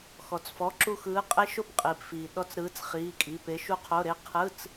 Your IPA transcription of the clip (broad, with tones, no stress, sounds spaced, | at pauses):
x ɔ˩ t͡s f ɔ˩˧˩ ǁ u˦˨ x ɯː˨˥ qʼ e˦˥ ʃ o˦˨ p qʼ iː˩ p f iː˩ ɗ ɔ˧˥˧ t͡s ɾ ɯː˨˥ t͡s χ iː˩˧˩ kʼ i˩˧˩ p e˨˥ ʃ u˦˥ qʰ o˧˥˧ ɾ e˦˥ qʰ ɯ˧˥˧ t͡s